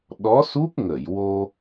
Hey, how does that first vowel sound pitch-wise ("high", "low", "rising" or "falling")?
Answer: rising